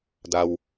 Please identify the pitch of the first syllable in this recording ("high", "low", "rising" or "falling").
low